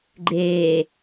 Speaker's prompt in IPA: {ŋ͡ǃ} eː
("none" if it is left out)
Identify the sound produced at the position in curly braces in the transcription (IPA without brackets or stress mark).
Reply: ɡ͡ǃ